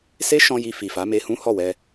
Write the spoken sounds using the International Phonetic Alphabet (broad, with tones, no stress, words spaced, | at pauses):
se˦ʃɔ̃˧ ji˧ fi˨fa˨˦me˧hũ˦ hɔ˦˨wɛ˧